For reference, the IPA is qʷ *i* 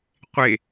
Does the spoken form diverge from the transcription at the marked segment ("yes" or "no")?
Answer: yes